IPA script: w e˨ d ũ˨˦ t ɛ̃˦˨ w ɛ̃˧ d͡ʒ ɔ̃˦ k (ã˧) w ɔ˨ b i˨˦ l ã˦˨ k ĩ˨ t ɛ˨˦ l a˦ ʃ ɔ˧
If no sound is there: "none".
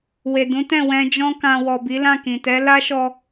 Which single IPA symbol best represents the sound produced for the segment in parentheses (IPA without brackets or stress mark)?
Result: ã˧